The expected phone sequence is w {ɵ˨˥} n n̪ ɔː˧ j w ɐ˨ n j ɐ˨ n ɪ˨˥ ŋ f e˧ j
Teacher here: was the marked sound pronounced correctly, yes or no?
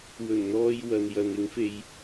no